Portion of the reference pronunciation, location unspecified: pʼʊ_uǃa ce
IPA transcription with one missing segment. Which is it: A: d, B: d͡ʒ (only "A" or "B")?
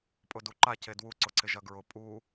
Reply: A